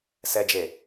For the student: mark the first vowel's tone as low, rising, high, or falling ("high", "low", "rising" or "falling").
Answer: low